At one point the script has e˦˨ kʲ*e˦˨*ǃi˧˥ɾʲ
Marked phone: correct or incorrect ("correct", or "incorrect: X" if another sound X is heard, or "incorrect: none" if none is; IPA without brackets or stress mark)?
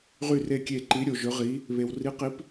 correct